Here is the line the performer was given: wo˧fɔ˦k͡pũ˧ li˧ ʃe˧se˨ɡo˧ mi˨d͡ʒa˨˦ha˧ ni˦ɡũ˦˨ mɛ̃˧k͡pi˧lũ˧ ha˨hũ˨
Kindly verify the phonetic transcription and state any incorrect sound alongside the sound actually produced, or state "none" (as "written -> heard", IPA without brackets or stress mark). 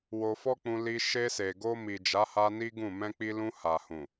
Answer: none